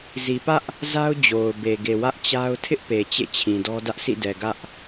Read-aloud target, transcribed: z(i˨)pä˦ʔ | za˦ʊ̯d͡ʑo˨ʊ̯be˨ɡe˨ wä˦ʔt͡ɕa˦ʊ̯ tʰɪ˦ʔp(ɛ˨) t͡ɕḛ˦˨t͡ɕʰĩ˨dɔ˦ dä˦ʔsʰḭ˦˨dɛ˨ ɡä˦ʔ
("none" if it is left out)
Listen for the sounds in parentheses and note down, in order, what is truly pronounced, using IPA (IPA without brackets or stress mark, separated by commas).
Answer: i˨, e˨